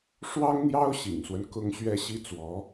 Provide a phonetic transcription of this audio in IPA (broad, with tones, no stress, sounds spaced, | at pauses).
ʂ w ɑ˥ ŋ n̪ j ɑ˥ ʊ̯ ɕ ḭ˨˩ ŋ s w ə˦ n k ʊ˥ ŋ ɕ ɥ ɛ˥ ɕ i˥ t͡s w ɔ˧˥